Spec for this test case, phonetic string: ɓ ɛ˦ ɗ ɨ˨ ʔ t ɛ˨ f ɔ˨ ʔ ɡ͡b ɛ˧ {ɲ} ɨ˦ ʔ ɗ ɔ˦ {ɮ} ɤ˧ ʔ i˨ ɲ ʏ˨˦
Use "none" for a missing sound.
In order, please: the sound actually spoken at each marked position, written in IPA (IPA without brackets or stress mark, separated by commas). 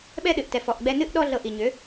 n, ɮ